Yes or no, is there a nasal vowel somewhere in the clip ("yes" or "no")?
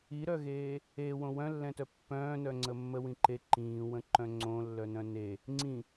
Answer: yes